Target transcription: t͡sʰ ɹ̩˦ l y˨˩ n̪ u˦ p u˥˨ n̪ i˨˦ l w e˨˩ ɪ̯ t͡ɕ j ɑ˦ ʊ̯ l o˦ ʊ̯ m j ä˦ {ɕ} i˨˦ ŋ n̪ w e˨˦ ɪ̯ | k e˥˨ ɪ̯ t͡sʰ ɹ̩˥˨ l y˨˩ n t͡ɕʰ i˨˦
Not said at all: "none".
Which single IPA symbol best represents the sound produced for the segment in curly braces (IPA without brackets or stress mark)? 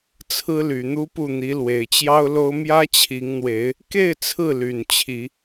t͡ɕʰ